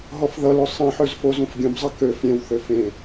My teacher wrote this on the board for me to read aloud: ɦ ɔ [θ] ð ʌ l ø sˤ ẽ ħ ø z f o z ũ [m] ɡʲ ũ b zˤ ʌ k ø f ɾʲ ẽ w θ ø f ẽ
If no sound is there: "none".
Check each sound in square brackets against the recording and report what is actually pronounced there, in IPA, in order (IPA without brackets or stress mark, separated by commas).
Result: f, f